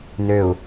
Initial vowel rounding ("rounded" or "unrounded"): rounded